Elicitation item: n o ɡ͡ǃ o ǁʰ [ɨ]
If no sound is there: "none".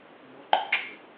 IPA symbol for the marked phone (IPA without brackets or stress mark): ɨ